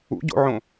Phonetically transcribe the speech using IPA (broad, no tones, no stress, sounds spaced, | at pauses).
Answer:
ṵ ɟ o̰ ʕ õ